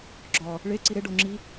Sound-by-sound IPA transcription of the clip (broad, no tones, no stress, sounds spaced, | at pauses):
ɡ͡ǁ ɒ | ɭ e ǀ i ɾ e ɖ o ŋ͡ǁ i